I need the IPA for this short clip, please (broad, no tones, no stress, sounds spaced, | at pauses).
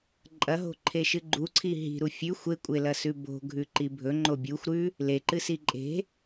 ǃʼ ɐ ɦ o̤ ǃʰ e ʃ ɨ ɡ͡ǃ u ǀʰ i ɦ i̤ ɾ u fʲ ʉ xʷ e kʷʼ e l ɐ s ʉ b o̤ ɡʱ ʉ ǃ i bʱ ɵ ŋ͡ǃ o bʲ u xʷ ɾ ʉ | l e ǃ ɨ s i ǃʼ e̤